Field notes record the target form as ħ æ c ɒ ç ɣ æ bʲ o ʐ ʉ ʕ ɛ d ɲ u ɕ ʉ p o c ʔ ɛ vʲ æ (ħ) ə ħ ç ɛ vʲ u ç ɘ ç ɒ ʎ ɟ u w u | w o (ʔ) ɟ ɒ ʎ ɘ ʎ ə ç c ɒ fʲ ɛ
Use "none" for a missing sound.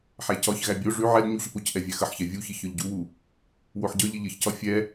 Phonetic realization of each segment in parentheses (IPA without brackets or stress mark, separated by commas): x, ħ